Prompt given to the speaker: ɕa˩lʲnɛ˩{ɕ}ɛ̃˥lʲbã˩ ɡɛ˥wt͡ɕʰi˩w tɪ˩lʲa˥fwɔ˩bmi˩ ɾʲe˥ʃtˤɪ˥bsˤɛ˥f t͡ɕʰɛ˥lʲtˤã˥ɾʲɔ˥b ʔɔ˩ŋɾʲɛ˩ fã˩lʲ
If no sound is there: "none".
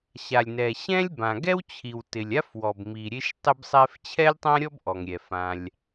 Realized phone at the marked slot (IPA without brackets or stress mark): ɕ